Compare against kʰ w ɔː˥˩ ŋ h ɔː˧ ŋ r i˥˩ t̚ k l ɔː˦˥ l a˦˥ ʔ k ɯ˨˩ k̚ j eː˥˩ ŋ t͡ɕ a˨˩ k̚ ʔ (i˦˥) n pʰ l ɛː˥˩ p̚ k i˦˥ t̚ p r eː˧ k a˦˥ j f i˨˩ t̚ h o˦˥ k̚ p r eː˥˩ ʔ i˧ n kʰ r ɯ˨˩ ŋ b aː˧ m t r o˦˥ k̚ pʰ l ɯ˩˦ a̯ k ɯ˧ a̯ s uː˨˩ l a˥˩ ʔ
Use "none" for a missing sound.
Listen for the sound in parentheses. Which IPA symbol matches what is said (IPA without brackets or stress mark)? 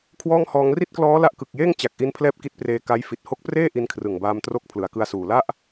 i˧